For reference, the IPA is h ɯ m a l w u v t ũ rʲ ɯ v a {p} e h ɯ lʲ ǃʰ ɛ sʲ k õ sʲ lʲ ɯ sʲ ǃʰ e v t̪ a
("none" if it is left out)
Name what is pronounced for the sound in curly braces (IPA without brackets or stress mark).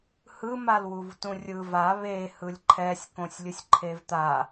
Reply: β